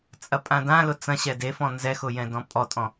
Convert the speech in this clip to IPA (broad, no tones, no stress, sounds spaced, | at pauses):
t͡sʼ ɐ pʼ ã d ã l ʊ t͡s ɐ̃ ɕ ɛ d e f ɔ̃ n z ɛ x ʊ j ɛ̃ d ɔ̃ pʼ ɔ tʼ ɔ̃